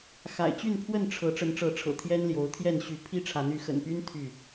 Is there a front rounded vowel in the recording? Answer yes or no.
yes